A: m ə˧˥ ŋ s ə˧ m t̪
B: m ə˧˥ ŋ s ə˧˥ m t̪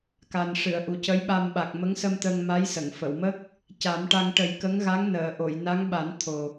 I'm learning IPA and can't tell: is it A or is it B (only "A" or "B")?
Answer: A